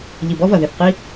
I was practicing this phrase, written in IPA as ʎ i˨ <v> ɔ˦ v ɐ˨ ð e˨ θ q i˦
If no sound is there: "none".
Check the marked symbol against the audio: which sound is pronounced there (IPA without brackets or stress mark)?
b